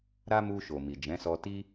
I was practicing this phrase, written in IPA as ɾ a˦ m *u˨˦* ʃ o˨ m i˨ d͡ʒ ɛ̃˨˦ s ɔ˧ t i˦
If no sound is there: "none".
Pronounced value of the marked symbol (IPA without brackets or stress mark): u˧